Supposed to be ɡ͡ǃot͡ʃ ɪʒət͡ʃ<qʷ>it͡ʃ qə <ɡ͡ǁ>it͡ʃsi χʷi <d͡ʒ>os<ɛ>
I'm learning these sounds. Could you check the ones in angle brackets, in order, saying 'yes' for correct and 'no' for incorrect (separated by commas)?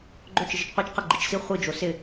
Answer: yes, no, yes, no